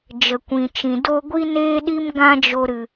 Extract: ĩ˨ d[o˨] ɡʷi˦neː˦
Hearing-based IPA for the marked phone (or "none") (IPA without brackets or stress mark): o˦